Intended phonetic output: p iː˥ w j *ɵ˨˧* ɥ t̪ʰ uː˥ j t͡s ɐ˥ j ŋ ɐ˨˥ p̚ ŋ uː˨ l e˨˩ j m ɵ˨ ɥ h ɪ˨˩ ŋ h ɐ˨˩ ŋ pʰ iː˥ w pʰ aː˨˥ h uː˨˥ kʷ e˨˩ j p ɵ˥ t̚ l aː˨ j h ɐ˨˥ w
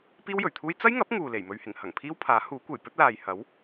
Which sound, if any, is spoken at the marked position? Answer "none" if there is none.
ɵ˨˩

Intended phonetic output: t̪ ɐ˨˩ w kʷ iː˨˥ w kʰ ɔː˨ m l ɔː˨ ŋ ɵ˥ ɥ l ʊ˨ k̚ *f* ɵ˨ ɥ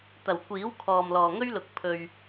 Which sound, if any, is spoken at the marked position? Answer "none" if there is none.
pʰ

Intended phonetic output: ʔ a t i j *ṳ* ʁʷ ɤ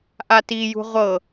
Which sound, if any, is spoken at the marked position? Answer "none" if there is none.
ṳ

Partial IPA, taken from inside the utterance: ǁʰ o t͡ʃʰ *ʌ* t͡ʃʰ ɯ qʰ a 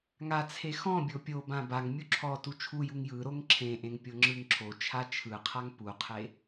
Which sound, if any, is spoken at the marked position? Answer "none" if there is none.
a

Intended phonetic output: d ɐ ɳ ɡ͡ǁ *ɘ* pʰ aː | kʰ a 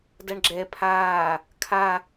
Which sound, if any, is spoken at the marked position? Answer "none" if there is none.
ɛ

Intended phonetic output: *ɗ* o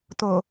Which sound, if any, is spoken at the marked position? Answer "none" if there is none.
t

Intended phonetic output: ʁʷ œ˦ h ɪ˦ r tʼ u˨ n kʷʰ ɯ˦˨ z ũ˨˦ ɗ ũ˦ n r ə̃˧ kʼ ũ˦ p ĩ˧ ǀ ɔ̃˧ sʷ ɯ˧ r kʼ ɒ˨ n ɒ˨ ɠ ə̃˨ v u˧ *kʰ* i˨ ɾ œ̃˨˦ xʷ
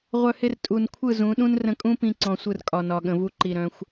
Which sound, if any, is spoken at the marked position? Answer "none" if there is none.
ǃ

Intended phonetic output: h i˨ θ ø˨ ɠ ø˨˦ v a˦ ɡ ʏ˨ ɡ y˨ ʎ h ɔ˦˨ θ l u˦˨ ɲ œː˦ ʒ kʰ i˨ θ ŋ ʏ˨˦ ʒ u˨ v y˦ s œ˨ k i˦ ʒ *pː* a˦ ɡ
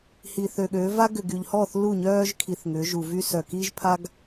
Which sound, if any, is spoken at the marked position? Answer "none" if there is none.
pʰ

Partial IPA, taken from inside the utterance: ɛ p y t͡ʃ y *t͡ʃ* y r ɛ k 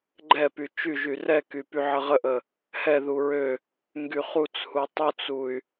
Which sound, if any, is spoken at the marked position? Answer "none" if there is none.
ʒ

